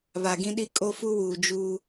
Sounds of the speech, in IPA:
β a˨ ɡ ĩ˦ ɗ i˦ kʼ o˦ f u˦ w uː˨ d͡ʒ u˦

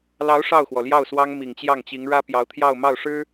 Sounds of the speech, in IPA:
l ɑ˧˥ ʊ̯ ʂ ɑ˥˩ ʊ̯ x w ɔ˩ l j ɑ˥˩ ʊ̯ s w ɑ˥ ŋ m i˨˩ ŋ t͡ɕ j ɑ˥˩ ŋ t͡ɕ i˧˥ ŋ ɻ ä˥ p j ɑ˧˥ ʊ̯ t̪ʰ j ɑ˥˧ ʊ̯ m ɑ˥˩ ʊ̯ ʂ ɻ̩˥

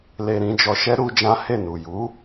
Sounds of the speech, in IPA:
l e˧ ɾ ĩ˧ d͡ʒ ɔ˧ ʃ ɛ˦ ɾ u˧ d͡ʒ ã˦ h e˦˨ n u˨ j u˨˦

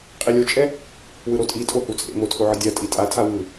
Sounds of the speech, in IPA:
qʼ i lʲ o t͡ʃʼ ɛ | w ɯ ɾ o tʼ i tʼ o h u t͡sʼ ḛ m o tʰ o ʕ ɯ dʲ a tʼ i tʼ a tʰ a w ɯ

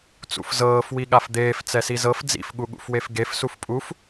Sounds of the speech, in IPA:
t͡s ṵ f z ɤː f w i ɠ a f d̪ eː f t͡s ɛ s i z ɤ f d͡z ḭ f ɠ u ɠ ṵ f w e f ɡ e f s u f pʼ u f

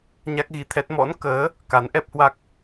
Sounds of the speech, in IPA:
ɲ a˦˥ k̚ ɣ i˧ t̪ʰ ɛ˦˥ t̚ m ɔ̰˧˥ n k əː˨˦ | k a˨˦ n ʔ ɛ˦˥ p̚ h w a˦˥ k̚

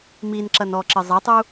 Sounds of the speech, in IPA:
m i n ǁ ɐ n ɔ ǁ ɘ zˤ ɐ tˤ u

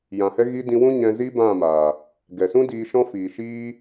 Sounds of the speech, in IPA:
j ã˨ h ɛ˦ ɣ i˧ d ĩ˧ w ũ˦ ɲ ɛ̃˧ z i˦ b ã˦˨ m aː˨ | ɡ ɛ˨ s ũ˦ d iː˧ ʃ ɔ̃˦ f iː˨ ʃ iː˦

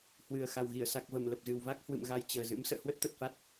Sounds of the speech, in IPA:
h w ɨ˨˩ ə̯ x a˨˩ w ɣ i˧˩ ə̯ s a˨˩ k̚ v ə˧˩ m l ə˨˩ p̚ z ɨ˨˩ w v a˦˥ k̚ h w ɨ̰˧˨ m ɣ a˧ j t͡ɕ əː˨˩ z ɨ̰˧˥ m s ə̰ː˧˨ h w ə˦˥ t̚ t̪ ə˨˩ t̚ f a˦˥ t̚

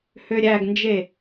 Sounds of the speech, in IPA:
h ø ɾʲ æ ɡ n d͡ʒ e

